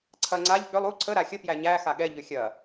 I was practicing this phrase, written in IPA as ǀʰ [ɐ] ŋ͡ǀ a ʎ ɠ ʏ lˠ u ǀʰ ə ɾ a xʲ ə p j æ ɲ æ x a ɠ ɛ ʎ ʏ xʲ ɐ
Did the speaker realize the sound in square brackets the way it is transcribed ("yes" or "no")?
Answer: yes